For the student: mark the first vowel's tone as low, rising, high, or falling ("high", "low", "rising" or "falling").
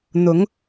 rising